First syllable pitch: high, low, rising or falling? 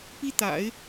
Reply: high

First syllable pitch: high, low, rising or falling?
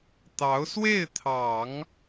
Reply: rising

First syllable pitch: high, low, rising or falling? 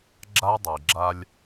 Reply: high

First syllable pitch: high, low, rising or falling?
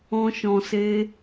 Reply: high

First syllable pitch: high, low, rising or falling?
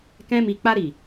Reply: high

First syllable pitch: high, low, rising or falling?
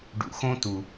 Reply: low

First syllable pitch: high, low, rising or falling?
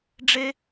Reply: high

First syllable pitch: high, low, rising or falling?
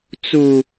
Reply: low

